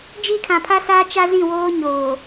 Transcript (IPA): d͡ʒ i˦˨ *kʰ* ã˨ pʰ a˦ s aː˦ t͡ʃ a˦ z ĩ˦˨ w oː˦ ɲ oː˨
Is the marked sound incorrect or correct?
correct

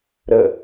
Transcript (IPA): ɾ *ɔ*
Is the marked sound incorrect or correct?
incorrect: ə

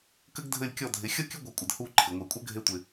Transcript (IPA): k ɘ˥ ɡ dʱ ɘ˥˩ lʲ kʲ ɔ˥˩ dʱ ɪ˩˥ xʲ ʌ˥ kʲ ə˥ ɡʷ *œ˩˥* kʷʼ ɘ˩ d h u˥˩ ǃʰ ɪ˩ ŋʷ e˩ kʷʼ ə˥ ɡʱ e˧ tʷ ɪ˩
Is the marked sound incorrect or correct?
correct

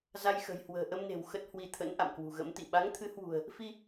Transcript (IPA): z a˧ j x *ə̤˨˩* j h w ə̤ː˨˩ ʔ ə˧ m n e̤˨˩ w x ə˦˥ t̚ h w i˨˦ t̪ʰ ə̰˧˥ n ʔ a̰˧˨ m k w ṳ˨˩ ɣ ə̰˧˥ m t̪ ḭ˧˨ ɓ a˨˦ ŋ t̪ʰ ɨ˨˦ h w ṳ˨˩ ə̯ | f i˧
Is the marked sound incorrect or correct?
correct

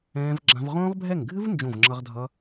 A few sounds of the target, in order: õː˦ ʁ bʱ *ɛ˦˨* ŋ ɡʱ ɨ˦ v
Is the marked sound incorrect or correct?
correct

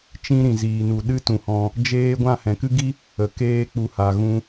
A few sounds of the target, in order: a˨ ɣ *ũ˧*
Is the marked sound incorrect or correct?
correct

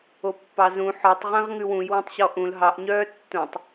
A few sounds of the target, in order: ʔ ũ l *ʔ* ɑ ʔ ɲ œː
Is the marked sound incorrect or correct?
incorrect: ɦ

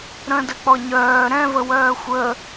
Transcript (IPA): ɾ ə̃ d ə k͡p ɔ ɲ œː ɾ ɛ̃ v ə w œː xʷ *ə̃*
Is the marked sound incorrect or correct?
incorrect: ə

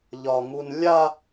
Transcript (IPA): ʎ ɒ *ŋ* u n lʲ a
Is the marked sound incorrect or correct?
correct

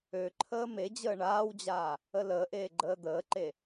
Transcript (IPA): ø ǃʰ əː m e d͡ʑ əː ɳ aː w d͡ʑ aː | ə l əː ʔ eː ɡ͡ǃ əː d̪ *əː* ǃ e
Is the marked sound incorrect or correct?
correct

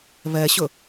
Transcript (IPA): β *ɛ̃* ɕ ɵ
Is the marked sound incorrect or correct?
incorrect: ɛ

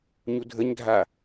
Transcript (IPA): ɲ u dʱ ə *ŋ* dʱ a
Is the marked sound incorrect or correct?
incorrect: ɲ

